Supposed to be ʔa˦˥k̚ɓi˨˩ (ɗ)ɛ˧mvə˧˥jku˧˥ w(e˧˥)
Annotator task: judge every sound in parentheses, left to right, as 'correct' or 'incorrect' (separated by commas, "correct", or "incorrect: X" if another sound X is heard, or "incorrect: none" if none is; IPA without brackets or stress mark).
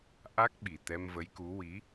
incorrect: t̪, incorrect: i˧˥